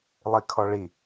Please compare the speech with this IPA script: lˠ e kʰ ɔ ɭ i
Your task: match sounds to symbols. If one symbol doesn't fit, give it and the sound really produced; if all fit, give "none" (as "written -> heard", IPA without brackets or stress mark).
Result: e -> i